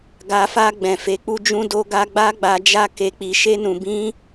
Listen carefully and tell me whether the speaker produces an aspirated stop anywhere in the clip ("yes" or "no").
no